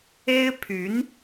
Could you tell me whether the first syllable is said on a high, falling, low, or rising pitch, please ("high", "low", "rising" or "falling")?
high